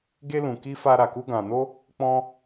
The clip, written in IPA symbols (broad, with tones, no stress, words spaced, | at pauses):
ɡe˦lũ˧ ki˦fa˦ɾa˧ku˦ ɡã˧no˦ | k͡pɔ̃˦